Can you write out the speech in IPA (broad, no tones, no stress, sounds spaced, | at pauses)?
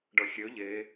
ɖ ʌ xʲ ø ʎ e